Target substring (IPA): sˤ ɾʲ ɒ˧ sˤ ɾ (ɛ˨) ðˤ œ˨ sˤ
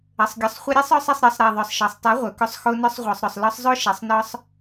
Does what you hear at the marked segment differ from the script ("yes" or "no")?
yes